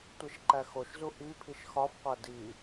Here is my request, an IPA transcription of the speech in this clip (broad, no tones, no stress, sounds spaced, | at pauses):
tʷ e ʃ ǃ æ x o ʃ z u ʔ i pʰ i ʃ x ɒ f qʷ æ d i